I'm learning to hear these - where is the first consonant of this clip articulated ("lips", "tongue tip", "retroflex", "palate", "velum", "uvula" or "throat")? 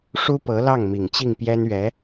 retroflex